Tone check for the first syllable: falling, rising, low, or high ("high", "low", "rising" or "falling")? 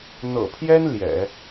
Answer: low